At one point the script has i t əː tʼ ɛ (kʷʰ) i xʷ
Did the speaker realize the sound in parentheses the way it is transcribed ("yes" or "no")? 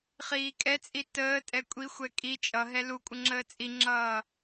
no